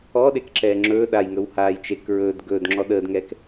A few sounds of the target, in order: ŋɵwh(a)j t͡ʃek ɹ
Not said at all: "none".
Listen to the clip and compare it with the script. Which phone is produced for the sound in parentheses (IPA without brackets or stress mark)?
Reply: aː